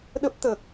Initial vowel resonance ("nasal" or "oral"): oral